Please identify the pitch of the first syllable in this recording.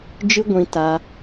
high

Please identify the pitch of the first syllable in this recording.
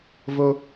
high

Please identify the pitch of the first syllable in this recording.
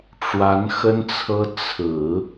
rising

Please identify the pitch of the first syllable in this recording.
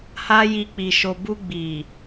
high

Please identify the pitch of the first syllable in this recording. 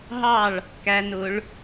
falling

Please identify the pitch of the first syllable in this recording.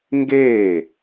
falling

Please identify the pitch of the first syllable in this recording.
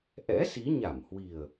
rising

